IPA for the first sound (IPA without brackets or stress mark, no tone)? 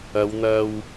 ɐ